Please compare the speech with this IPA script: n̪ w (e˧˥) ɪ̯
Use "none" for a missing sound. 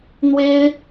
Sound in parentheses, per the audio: e˥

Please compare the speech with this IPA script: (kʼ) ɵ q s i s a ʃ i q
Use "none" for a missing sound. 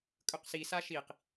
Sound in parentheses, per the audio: kʼ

